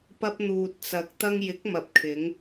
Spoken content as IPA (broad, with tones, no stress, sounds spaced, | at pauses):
p ɐ˧ p̚ n̪ uː˨ t̚ t͡s ɐ˨ k̚ t̪ ɐ˧ ŋ j ɪ˨˥ k̚ m ɐ˨˥ p̚ kʰ ɪ˨˧ ŋ